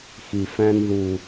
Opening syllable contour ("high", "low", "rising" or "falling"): low